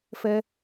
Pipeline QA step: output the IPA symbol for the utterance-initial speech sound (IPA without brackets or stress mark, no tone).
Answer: f